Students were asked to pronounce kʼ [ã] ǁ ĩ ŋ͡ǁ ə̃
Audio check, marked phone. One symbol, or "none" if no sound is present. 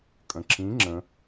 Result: ə̃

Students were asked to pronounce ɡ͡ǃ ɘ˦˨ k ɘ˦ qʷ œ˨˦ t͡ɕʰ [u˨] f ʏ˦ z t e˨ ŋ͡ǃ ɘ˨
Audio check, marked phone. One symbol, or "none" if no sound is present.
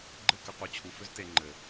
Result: u˨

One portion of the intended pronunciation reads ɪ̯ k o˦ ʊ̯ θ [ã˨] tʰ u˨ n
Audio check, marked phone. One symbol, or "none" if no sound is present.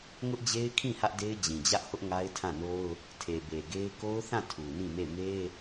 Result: ã˦˨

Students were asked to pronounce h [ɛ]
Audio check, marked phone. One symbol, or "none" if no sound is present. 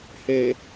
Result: e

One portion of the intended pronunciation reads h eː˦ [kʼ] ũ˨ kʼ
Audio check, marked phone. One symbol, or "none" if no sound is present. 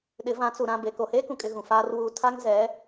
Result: k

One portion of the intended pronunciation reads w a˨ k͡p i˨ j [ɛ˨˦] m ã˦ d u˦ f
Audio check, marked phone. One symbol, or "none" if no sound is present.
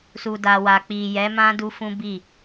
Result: ɛ˨˦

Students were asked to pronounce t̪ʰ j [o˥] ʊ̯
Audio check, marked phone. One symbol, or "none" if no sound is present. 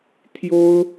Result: o˥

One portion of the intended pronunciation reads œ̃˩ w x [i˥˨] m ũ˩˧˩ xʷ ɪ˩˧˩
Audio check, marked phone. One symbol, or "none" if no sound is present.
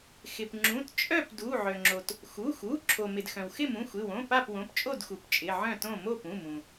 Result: ɪ˥˨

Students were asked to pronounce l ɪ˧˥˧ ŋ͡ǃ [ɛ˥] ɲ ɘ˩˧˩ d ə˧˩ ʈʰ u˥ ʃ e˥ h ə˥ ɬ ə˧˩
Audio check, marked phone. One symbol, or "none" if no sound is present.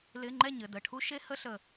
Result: ɛ˥˨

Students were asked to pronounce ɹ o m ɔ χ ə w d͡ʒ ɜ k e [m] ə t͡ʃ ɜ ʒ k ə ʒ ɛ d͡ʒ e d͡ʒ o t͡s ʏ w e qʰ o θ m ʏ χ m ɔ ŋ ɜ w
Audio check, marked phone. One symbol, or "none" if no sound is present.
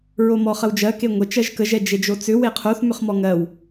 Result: ŋʷ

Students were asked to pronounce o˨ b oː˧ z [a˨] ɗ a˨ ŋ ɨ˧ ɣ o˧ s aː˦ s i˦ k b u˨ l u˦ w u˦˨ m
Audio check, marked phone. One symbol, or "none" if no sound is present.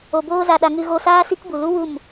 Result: a˨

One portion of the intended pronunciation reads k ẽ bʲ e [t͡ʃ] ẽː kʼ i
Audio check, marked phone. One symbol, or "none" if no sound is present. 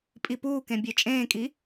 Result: t͡ʃʼ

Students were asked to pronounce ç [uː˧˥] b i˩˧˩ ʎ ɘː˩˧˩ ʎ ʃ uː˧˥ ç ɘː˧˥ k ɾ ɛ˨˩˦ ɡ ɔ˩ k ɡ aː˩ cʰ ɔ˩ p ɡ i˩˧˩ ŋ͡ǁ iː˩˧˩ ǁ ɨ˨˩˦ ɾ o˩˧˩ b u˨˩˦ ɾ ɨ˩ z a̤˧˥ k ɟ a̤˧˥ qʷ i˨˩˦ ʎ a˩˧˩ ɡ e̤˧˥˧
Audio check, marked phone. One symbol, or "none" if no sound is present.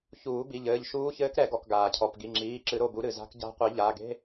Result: uː˨˩˦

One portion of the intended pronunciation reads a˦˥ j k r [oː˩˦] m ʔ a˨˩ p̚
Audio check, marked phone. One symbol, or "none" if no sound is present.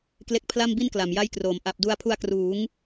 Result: oː˩˦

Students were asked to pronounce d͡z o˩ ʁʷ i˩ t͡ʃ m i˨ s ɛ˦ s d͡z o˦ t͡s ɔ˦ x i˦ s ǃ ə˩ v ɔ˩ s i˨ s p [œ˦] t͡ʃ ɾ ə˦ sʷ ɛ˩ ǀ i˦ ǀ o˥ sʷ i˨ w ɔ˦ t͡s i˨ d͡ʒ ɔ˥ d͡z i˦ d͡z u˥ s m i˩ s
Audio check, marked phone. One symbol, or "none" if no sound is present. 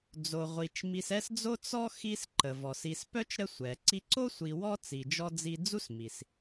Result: œ˥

